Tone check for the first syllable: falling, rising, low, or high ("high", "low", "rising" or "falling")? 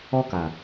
high